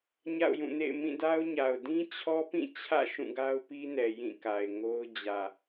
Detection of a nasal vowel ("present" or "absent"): present